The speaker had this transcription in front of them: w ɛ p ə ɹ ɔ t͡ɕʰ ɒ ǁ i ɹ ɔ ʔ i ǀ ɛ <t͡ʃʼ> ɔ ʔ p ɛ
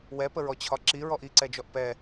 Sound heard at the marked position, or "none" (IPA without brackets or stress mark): d͡ʒ